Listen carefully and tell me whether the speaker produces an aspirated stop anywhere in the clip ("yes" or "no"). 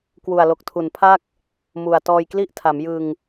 yes